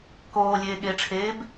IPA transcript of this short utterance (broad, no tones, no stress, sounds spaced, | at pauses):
k oː lʲ eː ɠ eː ʈ͡ʂʰ eː b